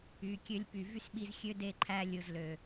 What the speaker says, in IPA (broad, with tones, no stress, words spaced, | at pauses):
y˨ kʲø˧lʲpy˨ vy˦sɓi˧zxʲø˦de˦˨ ǃʰæ˧ lʲɯ˨zlø˨